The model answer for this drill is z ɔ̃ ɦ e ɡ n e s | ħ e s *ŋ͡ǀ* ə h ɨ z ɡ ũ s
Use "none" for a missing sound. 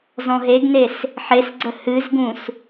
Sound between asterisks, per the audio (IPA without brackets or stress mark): ɡ͡ǀ